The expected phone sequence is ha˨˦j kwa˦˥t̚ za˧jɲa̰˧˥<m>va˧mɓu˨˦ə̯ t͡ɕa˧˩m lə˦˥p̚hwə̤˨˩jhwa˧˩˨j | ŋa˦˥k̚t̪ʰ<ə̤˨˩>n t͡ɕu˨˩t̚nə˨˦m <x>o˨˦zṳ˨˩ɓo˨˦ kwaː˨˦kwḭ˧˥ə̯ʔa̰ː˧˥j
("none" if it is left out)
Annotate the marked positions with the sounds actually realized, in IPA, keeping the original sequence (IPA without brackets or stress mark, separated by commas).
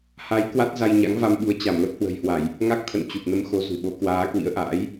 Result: ŋ, ə̰˧˨, x